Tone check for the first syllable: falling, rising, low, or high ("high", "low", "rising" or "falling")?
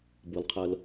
low